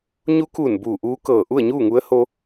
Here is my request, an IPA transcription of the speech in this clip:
ɲu˧˥kuː˧˩n buː˧˩ʔuː˧˥kɤː˧˩ ʔu˥˨ə̯ɲuː˥˨ŋu˧˥ə̯ ho˧

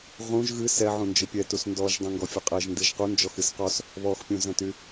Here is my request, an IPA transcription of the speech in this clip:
ʁũʒ ɣɨ sɛ ʕũnd͡ʒɨpʲɛ tusndɔʒ dˤũŋɡɔfʲɨqʼɛʒ ndɨʒqu nd͡ʒɔxɨsqɔs | βɔxpʲũzɛ̃ty

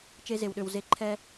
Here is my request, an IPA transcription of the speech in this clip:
t͡ʃe˧ze˨wɗø˨w ze˨˦ǃʰɛ˧

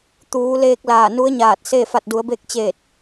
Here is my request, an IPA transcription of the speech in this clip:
t̪uː˩˧leː˧k̚ laː˧˩nu˧˥ə̯ɲaː˧˩t̚se˥˨ fa˧˩t̚du˩˧ə̯be˧k̚t͡ɕeː˧˩t̚

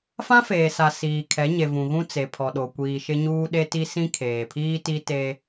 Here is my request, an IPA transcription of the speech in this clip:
fã˦feː˨sa˨ siː˨kʰɛ˨˦ ɲe˨vũ˨ɣũ˦ t͡se˨pʰɔ˨ɗo˨ kʷiː˨ʃɪ˦ɲuː˦ ɗe˦ti˦ sĩ˦kʰeː˨pʰiː˦ti˦ te˦

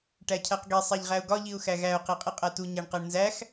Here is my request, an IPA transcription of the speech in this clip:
ʈæcʰæqɡe sˤæʎʁæʊ̯ɡɒ ʎiʊ̯xæɣæʊ̯ qeqʼiqʼætu ɲæɳqæɳnzæx

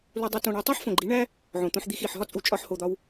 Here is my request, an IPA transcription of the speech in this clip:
lu˦dˤu˦ tõ˧ɳe˧ tˤi˦ħfõ˨ɡ͡ǃi˨˦ɳæ˦ | ʕõ˨t̪õ˧ħd̪i˧x i˨ħɦɒ˦ t͡sʼu˧t͡ʃʼɒ˦ħho˧d̪ɒ˦w

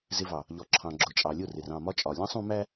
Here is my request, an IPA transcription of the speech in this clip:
zɪ˧vɑ˨ | ʎɔ˨ǁʰɑ̃˨ɡ͡ǁʊ˨ t͡ʃʼɑ˨lʲʊ˦˨r ɪ˨rɑ̃˦˨mɒ˦t͡ʃʼɒ˨ lʲɑ̃˦sˤũ˧mæ˦

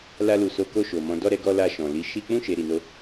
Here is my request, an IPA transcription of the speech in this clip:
la˧lu˨so˨˦ ko˦˨ʃo˨mɔ̃˨˦ dɔ˦˨ɾɛ˧ɡɔ˧ la˧ʃɔ̃˨li˧ ʃi˦ k͡pũ˦˨ʃe˨ ɾi˨no˧

